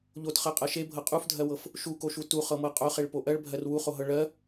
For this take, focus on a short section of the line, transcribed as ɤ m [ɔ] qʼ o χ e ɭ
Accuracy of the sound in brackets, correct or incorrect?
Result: incorrect